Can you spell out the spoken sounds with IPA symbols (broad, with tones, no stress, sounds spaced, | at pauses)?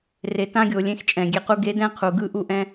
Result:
r e˨ t ã˦ ɡʲ o˨ lʲ ẽ˧ x t͡ʃʼ ɛ̃˨ ɡʲ e˧ q u˦ ɡ e˨˦ d ɛ̃˦˨ qʰ u˨ ɡ ɯ˦ ʔ u˦ ʔ ɛ̃˦